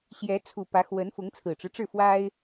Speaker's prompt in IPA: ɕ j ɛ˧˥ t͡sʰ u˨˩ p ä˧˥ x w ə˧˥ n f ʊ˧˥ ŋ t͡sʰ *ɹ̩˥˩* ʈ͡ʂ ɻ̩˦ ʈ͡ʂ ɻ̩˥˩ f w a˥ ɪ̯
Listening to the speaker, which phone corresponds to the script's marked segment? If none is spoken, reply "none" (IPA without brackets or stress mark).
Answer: ɹ̩˨˩